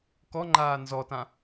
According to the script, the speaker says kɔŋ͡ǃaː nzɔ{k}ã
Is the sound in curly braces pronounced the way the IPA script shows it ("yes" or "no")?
no